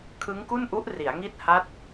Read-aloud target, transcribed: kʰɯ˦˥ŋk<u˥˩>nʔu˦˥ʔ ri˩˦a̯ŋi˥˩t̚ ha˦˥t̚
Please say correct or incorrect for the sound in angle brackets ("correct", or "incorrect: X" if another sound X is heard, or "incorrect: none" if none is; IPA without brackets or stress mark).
correct